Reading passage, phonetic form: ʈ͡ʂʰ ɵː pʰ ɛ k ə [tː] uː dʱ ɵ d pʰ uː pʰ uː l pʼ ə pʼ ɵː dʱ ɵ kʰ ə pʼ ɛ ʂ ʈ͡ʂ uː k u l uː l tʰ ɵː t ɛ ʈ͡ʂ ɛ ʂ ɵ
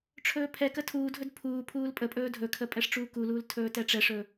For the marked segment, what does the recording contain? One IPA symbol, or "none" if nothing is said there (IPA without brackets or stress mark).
tʰ